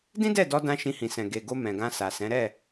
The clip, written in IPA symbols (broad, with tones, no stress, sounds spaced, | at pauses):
d ĩ˦ d ɛ˦˨ d ɔ˧ d ã˧ ʃ ĩ˧ h ĩ˨ s ɛ̃˨ ɡ e˨ ɡ o˧ m ɛ̃˨ ɡ ã˧ s a˨ s ɛ̃˨˦ ɾ ɛ˦˨